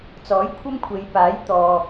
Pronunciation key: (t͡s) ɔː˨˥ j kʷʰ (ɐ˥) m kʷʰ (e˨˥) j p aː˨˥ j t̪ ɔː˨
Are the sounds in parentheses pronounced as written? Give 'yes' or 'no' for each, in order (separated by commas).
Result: yes, yes, no